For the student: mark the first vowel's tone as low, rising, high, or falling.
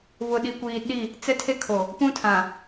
low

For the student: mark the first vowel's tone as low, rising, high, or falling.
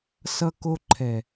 high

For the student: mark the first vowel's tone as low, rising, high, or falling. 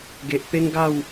low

